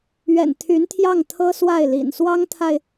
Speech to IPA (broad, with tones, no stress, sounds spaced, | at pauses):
ɥ ɛ̰˨˩ n t̪ʰ y˧˥ n t̪ʰ j ɑ˥˩ ŋ t̪ʰ ɤ˥ s w a˥˩ ɪ̯ l ḭ˨˩ n s w ɑ˥ ŋ t̪ʰ a˨ ɪ̯